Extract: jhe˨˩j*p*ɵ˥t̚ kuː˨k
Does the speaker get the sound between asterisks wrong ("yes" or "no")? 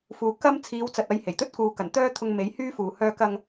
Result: yes